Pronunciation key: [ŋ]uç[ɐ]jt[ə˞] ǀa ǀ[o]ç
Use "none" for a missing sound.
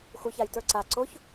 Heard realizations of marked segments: x, a, ə˞, o

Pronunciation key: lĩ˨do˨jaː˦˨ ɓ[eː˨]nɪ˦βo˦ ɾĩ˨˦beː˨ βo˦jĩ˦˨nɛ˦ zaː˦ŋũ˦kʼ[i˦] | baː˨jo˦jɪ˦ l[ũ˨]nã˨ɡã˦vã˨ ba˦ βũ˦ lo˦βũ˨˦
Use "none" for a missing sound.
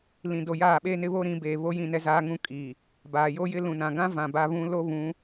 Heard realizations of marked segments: eː˦, i˨, ũ˨

